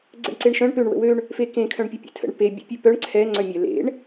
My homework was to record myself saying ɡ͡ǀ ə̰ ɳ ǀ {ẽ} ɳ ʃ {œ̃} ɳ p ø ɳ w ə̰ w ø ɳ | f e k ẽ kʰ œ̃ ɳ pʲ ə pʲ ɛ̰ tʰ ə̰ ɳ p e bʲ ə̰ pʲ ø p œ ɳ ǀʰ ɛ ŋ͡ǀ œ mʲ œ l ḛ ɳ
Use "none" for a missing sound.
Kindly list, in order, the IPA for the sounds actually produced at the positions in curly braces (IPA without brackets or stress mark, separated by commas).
e, œ̃